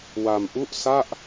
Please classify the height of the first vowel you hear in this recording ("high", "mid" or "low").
low